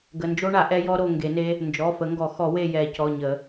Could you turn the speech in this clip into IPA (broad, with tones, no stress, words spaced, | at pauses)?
ɡə˩˧˩nd͡ʒo˦˥ɳa˨˩˦ ʔɛ˦˥jɔ˦˥ɾo˦˨ ŋɡe˨˩˦ne˦˥ | nd͡ʒɔ˩˧˩fə˨˩˦ŋɡɔ˨˩˦ xɔ˨˩˦we˦˨ jɛ˨˩˦cɔ˩˧˩ɲə˨˩˦